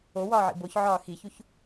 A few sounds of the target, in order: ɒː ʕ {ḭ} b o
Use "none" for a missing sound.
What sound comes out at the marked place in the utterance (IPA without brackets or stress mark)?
ḭ